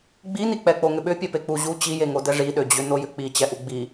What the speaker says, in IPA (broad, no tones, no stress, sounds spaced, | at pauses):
ɡ͡b i n i k͡p ɛ k͡p o ŋ ʏ ɓ ʏ pʲ ɛ p e k͡p u ʑ u t͡ɕ i j e ŋ o d ɛ ʐ i ɗ ø d͡ʑ ʏ n o j ʏ k͡p i t͡ɕ ɛ ʔ u ɡ͡b i